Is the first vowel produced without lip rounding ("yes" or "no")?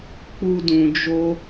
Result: no